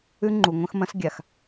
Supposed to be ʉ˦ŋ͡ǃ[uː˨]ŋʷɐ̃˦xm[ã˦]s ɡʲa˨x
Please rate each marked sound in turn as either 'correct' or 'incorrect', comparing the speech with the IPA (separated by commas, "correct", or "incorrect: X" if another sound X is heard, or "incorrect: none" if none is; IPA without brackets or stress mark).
incorrect: u˨, incorrect: ɐ̃˦